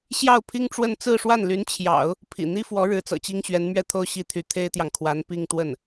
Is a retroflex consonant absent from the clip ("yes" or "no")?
no